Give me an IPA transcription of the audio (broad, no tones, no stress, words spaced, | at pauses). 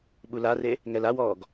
ɓulare | ŋɛlawɔːɡ